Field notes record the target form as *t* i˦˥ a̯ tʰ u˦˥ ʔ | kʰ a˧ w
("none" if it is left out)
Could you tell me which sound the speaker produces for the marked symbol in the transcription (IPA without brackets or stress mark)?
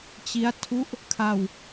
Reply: t͡ɕ